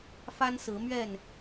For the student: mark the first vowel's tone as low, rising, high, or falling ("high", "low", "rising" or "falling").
high